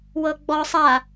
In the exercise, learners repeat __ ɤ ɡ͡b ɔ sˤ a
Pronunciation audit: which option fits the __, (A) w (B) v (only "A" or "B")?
A